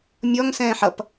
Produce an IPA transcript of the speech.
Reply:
mʲ ɔ ŋ s ɛ̃ː ħ ʌ p

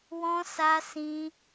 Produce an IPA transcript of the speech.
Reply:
w ɔ̃˦ s a˦ s ĩ˦

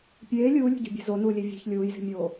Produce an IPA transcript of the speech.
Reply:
pʲ eː lʲ uː lʲ ṳ ɟ ṳ bʲ ɛ̤ z o n uː lʲ e vʲ e̤ ç lʲ uː j z i̤ mʲ oː

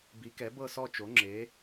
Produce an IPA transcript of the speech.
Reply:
b i˩˥ k ɛ˩˥ b ɤ˥˨ s ɔ˥˨ t͡ʃ o˩˥ ŋ͡ǁ e˩˥

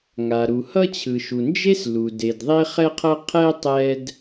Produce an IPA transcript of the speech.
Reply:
ŋ a˩ ɾ u˩ h ʌ˥ t͡ɕʰ ɯ˩ ʃ u˩ n d͡ʒ e˥ s l u˩ d e˩ d ðˤ e˥ χ ɛ˥ qʰ ʌ˥ qʰ ɛ˥ tˤ ɛ˥ d

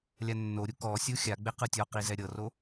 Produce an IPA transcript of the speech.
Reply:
lʲ a nː o ɾʲ u k ɔ sʲ u xʲ a ɡ͡b e q ɯ tʲ ɔ q i z ɛ ɾʲ ɤ r o

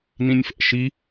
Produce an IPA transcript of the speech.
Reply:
n ĩ nʲ f ɛ̰ ʃ i

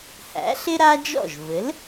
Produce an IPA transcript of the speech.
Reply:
h æ̰˩˥ ɬ ɪ˥ ɾ a˥ d͡ʒ ɔ̰˥˩ ʒ v ɘ˩˥ l

